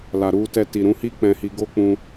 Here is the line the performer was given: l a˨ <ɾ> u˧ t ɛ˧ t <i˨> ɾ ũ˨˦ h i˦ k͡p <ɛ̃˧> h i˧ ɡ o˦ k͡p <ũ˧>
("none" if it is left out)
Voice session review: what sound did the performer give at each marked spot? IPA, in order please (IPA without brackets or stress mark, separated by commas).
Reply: ɾ, i˨, ɛ̃˧, ũ˧